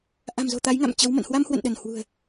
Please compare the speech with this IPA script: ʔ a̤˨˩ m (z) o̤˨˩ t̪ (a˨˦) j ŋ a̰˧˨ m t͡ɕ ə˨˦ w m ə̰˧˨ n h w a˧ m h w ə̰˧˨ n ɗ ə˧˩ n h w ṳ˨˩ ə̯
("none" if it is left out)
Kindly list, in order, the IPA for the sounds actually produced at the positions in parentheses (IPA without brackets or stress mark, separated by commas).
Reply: z, a˨˦